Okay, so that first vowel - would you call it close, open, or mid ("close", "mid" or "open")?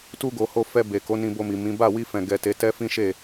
close